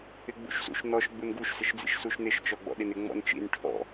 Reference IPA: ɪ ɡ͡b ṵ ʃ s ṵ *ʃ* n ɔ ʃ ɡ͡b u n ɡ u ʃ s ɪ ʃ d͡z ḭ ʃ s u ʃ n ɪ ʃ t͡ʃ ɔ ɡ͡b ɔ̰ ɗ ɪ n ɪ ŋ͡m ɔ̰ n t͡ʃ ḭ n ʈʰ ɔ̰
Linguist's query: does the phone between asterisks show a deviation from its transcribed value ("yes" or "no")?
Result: no